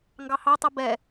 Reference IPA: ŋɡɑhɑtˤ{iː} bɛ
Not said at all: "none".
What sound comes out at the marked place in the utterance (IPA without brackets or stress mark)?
i